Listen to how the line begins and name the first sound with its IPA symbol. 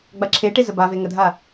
ɡ͡b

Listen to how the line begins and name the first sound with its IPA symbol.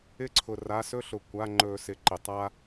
ɪ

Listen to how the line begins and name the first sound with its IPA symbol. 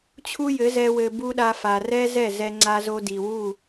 t͡ɕʰ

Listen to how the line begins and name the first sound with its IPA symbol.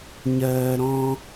ɲ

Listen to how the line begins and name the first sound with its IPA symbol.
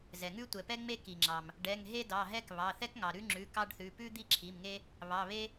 z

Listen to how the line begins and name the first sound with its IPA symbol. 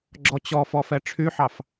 ɡ͡ǁ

